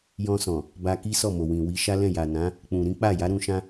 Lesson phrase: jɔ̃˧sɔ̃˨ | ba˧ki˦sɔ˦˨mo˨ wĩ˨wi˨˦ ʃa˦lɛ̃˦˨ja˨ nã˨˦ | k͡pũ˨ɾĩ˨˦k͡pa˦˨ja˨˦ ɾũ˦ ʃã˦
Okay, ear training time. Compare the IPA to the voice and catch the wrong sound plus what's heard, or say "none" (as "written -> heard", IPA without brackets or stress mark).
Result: none